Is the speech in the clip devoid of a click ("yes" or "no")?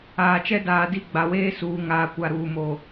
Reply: yes